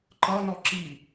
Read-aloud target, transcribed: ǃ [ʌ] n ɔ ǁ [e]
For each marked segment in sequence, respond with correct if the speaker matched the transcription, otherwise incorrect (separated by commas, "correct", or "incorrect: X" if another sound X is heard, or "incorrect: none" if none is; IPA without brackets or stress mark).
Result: correct, incorrect: i